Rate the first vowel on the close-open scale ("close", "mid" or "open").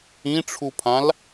close